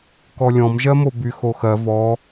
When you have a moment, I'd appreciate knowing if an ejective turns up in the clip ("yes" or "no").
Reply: no